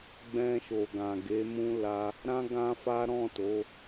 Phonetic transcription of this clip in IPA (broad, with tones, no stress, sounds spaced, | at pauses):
ɡ͡b ɛ̃˧ ʃ o˨ ɡ ã˨ ɡ e˨˦ m ũ˦ l a˦ | ɾ ã˦ ɡ ã˦ f a˦ ɾ ɔ̃˦˨ t o˨˦